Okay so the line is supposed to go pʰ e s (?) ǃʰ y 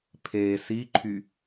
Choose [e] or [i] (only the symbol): i